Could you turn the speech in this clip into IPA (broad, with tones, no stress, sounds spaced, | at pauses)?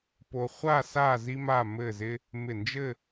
p o˧ χʷ a˥˧ s a˥˧ z i˥ m a˥˧ m ɘ˥˧ z ɪ˥ | m ɪ˧˩ n d͡ʒ ɘ˥˧